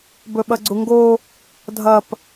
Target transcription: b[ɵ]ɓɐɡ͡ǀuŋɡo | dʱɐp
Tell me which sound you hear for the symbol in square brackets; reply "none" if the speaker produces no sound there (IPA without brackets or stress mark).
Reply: ɵ